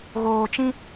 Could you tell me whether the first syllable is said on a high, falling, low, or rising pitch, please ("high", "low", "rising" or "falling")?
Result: low